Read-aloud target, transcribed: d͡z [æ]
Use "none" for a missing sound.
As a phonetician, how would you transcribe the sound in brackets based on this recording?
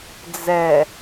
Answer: ɛ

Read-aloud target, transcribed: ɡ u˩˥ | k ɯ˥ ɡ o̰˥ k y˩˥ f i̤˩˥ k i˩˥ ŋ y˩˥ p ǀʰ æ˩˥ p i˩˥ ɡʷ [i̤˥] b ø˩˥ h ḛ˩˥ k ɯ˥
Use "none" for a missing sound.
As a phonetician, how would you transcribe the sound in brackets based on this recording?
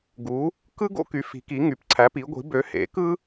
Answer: i̤˩˥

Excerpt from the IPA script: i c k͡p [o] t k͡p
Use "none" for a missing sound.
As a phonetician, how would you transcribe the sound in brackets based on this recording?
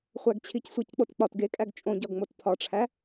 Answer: o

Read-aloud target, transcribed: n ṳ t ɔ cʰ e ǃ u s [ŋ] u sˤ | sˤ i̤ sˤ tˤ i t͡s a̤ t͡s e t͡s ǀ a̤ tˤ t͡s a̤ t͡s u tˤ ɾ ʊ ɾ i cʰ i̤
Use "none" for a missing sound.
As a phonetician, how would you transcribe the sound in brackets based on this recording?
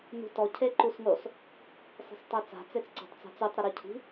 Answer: ŋ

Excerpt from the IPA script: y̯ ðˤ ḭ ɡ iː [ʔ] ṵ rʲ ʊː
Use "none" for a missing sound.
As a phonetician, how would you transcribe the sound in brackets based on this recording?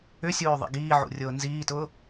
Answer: ʕ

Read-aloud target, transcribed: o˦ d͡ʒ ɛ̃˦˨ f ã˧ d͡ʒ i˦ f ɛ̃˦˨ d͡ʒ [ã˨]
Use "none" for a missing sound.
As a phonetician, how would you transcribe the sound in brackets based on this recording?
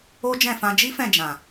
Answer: ã˨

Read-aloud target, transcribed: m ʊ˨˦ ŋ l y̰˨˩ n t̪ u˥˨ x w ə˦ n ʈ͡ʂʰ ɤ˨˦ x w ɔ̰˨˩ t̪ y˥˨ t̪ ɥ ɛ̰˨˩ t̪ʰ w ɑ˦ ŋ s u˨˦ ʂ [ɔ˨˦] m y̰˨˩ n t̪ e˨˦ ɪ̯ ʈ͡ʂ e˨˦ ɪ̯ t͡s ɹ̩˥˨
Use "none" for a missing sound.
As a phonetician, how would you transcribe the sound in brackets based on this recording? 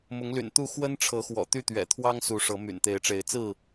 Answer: ɤ˨˦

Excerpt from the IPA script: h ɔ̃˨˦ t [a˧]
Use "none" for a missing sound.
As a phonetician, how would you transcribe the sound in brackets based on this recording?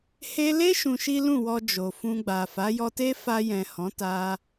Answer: a˧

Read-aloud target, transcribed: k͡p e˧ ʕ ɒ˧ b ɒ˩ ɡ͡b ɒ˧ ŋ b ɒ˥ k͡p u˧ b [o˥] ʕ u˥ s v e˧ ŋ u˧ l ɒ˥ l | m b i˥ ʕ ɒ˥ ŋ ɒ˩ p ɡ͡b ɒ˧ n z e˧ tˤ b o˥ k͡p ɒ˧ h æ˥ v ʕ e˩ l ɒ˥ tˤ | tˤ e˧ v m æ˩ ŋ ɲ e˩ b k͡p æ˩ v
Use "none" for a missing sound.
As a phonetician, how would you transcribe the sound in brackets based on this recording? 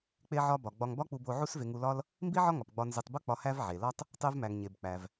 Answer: o˧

